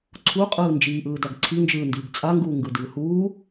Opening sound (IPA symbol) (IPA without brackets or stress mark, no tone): ǀʰ